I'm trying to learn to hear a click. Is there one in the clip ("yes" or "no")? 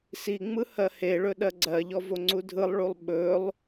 yes